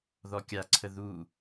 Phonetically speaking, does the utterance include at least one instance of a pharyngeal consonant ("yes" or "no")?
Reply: no